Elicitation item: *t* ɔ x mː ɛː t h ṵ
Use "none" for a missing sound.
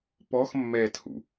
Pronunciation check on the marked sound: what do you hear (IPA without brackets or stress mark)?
p